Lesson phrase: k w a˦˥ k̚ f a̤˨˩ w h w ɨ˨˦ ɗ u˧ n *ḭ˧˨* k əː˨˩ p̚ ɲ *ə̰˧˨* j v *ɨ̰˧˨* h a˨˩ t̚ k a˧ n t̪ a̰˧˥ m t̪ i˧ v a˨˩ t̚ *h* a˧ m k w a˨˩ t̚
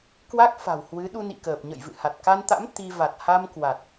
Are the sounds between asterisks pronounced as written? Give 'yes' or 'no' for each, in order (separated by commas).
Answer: yes, yes, yes, yes